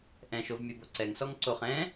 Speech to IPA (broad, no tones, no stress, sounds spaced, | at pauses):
ʔ ɛ̃ ʃ o v mʲ œ b o ǀ ɛ ŋ s ɔ ŋ ǀ o χ ɛ̃